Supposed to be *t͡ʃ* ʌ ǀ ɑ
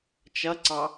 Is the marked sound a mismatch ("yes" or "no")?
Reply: no